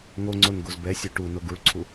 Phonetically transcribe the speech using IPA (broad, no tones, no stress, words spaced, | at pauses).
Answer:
ŋoŋ͡ǀon ɡozbɛsʲo ʈuno ɡuɭǀʰu